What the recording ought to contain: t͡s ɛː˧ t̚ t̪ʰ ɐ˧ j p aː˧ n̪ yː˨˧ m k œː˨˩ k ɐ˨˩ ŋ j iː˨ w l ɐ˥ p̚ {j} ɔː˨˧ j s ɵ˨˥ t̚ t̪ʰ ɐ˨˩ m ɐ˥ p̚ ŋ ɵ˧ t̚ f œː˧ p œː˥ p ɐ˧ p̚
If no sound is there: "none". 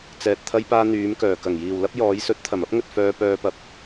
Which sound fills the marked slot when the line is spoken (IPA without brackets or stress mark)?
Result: j